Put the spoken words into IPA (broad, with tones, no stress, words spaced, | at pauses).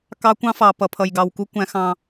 kɑ˦kʷɑ̃˦fɑ˨ pʌ˨ pʰʌ˨jɡɑ˨wku˦ kʷæ̃˦xɑ̃˦